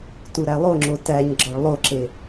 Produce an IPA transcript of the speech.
tuɾælˠoŋ͡ǁo tæɲ ɡ͡ǁɒɭlˠoǁe

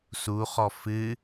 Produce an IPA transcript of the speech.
suχɔ fɨ

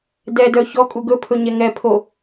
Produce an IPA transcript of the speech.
dɛdœ çɔkʼu ɡɵpʰɵɲɛ ŋɛpʰo

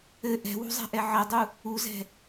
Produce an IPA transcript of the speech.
ɘ ʔɛ̤wṳzˤɛ̤ʔɛ ʕɘdˤu | uzɛ̤

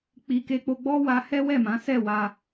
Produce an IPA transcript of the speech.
k͡pi˧ke˦k͡po˦ ɡ͡bɔ˦ wa˧ hɛ˦wɛ˦˨mã˨˦sɛ˦˨ wa˧

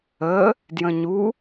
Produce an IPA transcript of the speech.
ə | djə̃ɲu

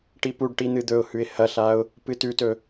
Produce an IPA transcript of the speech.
ʈipuɖʈi n̪ɨd̪ɵʊ̯hʉɪ̯ hɐɬaʊ̯ | pɨtʉtɵ

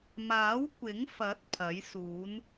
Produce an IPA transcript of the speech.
maː˨˥wkʷɪ˨˥ŋfɐ˨˥t̚ pʰɐ˨˥jsuː˨˥n

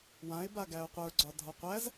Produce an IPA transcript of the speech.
wãɪ̯ baɡæʊ̯qʷə˞ɡ͡ǀɒ dʱɒqʷæz

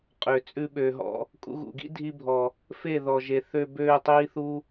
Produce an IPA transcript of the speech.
qʼø˨t͡sʼʉ˧ ɓøː˨ɦɔ̰˧ | kʼṵ˧ɣṵ˨ɡḭ˦ dʱi˧bʱɔ˨ | fe˦˨ðɔ˨ʒe˨θø˧ bøː˧ tˤiː˦θu˦

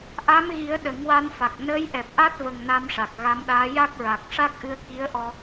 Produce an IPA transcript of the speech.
ʔa˧˥mɣi˨˩˦ə̯ ɗə˨˩˦ŋwa˧nfa˨˩k̚ nəː˧˥jʔɛ˨˩p̚ʔa˦˥t̚və˨˩ŋ na˧mʂa˨˩k̚ɣa˧˥mɗaː˧˥ ja˦˥k̚ɹa˨˩k̚ ʂa˦˥k̚ʔɨ˧ə̯ ki˧˥ə̯ʔɔ˧

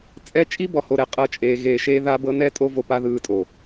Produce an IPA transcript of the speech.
t͡sʼɛ˦ t͡ʃʼi˦bɔ˨ ho˧ɾɛ˨ qʼɤ˦t͡ʃʼeː˧ ɣeː˧ʃeː˦ða˦bɤ˦ nɛ˦tʼo˦ vo˧pa˦ ðɯː˧tʼo˨

